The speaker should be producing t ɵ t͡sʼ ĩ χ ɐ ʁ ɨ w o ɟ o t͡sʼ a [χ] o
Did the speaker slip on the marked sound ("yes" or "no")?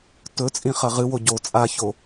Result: yes